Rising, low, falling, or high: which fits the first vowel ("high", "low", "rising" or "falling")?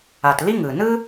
low